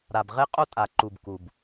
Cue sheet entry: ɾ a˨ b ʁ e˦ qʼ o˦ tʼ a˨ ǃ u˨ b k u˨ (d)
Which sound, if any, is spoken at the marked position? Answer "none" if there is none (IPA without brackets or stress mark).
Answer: b